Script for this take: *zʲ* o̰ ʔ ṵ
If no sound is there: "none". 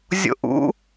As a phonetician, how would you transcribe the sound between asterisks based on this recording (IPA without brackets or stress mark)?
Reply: zʲ